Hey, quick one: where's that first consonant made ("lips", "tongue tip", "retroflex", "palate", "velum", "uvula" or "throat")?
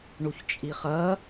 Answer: retroflex